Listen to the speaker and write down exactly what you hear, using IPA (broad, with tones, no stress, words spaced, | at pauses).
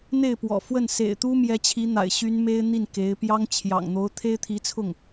n̪e˥˩ɪ̯pwɔ̰˨˩fwə˥˩n sḛ˨˩ɪ̯t̪u˥mjɛ˧˥t͡ɕʰi˧˥ n̪a̰˨˩ɪ̯ɕy˥n me˥ɪ̯n̪i˥˩n ke˧˥ɪ̯ pjɑ˥ŋ t͡ɕʰjɑ̰˨˩ŋn̪o˧˥ʊ̯ t̪ʰe˥ɪ̯t̪ʰi˧˥t͡sʰʊ˥˩ŋ